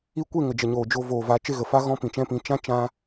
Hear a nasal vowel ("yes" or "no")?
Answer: yes